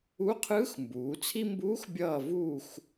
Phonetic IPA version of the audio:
u˧˥qʰɯː˧˥x mbuː˩˧t͡sʰi˥ mbuː˧˥x bʲʌː˦˨vuː˦˨x

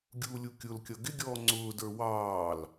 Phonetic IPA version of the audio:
ɡʲuːlʲukʲʊlkʲʌ ɡɪɡʲɔː ŋ͡ǀʊːdə˞ wɑːl

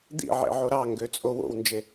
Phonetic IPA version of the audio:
d̪ḭʕḛ ʕoɾɑŋɡø t͡sʼowo̰wnd͡ʒe

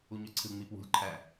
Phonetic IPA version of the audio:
uɲøǀʰɯ ŋ͡mipwṳlʲ ǃʰæ

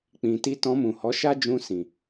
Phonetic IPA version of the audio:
k͡pĩ˨ti˧ tɔ̃˧mũ˨ hɔ˨˦ʃa˦ d͡ʒũ˧sĩ˨

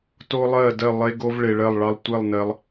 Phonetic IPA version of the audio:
to˥lˠɜ˥˧dɜ˥˧ lˠe˧ɡo˧v ɭe˧ɭɜ˥˧lˠɭɑ˥lˠ tʷɛ˥˧lˠ nɜ˧lˠ

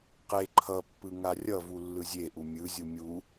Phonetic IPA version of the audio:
qe ǃʰʌpːɯ ŋarʲʌvu lːɯzʲeʔu mʲɯzʲu mʲu

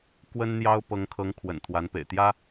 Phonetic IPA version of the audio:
kwə˥nn̪jɑ˥ʊ̯ pɤ˧˥ŋkʰɤ˧˥ŋ kʰwə̰˨˩nt̪ʰwa˧˥npḛ˨˩ɪ̯ t̪jä˥

